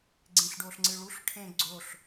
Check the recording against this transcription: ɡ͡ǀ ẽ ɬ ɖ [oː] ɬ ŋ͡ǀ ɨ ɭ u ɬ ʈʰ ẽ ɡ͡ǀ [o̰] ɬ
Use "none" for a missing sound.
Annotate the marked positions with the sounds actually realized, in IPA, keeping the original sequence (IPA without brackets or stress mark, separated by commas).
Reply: oː, o